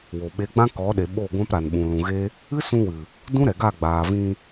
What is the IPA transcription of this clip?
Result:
w o˨ ɓ e˨˦ ɡ͡b ã˦ k ɔ˨˦ ɗ e˨ ɓ o˦˨ ɡʷ ã˦ p ɾ a˨ n ɓ ũ˨ l ũ˨ ɣ e˦ | ɨ˦ s ũ˧ w ɨ˨ | d ũ˦ ɾ ɛ˨ ɡ a˦˨ ɡ͡b aː˨ v ĩ˧

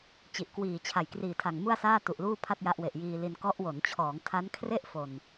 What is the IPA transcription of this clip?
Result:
t͡ɕ i˨˩ ʔ k w iː˨˩ t͡ɕʰ a˨˩ j k r iː˨˩ tʰ a˨˩ ŋ m u˥˩ a̯ s aː˥˩ t u˨˩ ʔ l uː˥˩ pʰ a˥˩ t̚ j a˦˥ ʔ w e˨˩ ʔ j iː˧ l i˧ n k ɔ˦˥ ʔ w o˩˦ n t͡ɕʰ ɔː˩˦ ŋ tʰ a˦˥ n kʰ r e˥˩ ʔ f o˨˩ n

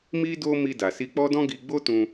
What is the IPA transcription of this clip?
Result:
m i˦ d o˦ m i˧ d a˨ s i˧ k͡p ɔ˦ d ɔ̃˦ ɡ i˧ ɡ͡b o˦ t ũ˧

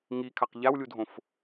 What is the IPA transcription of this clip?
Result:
ŋ i kʰ a q ʎ a w lʲ u dʱ õ f

